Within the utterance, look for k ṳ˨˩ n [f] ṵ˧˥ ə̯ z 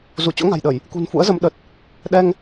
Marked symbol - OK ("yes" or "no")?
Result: yes